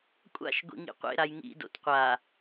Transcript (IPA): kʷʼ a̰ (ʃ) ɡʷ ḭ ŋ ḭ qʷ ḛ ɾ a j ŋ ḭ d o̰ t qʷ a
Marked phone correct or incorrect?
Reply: correct